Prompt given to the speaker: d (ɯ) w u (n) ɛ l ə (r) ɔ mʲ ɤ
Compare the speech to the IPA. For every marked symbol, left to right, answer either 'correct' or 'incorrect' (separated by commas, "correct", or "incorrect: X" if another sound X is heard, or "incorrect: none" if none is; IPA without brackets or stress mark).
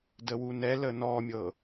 incorrect: ə, correct, incorrect: n